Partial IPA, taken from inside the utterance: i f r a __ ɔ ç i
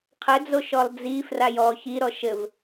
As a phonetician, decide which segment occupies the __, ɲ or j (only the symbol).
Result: j